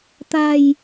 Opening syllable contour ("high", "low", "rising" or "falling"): low